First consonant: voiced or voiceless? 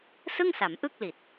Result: voiceless